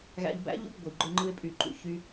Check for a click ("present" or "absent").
present